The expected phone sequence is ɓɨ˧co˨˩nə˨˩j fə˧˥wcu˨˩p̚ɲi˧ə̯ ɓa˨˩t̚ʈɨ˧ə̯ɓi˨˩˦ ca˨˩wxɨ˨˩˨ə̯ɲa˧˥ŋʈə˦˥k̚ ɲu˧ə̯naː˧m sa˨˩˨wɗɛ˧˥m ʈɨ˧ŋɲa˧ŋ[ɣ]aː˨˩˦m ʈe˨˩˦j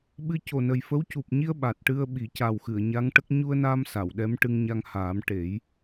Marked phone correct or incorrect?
incorrect